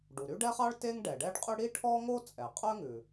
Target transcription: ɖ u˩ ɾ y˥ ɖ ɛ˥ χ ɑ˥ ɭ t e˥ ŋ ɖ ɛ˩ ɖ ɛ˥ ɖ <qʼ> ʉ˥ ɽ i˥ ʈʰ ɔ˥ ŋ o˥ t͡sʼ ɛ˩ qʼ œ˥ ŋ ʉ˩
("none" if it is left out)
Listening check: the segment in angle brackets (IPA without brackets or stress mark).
qʼ